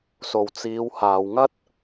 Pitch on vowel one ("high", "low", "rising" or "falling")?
low